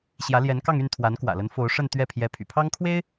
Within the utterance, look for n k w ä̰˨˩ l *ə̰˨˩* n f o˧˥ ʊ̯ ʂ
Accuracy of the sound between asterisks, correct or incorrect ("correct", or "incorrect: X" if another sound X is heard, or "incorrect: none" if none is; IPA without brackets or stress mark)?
incorrect: ə˧˥